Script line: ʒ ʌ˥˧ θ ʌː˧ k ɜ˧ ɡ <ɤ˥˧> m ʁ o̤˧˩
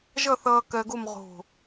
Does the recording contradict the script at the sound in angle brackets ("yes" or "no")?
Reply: yes